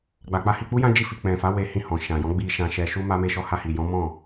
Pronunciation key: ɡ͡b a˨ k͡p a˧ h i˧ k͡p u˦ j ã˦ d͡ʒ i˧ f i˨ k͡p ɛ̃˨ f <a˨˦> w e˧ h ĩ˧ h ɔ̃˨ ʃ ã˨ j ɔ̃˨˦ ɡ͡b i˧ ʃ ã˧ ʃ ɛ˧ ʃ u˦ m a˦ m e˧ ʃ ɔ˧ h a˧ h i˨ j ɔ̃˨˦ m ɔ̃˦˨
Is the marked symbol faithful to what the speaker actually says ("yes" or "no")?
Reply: yes